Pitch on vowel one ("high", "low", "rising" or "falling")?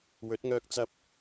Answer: rising